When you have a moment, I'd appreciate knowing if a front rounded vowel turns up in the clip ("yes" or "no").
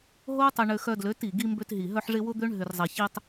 yes